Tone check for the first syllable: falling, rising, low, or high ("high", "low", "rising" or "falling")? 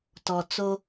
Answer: low